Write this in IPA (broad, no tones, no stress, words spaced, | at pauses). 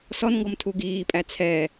sɔnŋɡɔmtʰu ɡiːpʼæ t͡sʰɛ